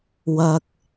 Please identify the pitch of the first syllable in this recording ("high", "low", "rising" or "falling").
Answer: low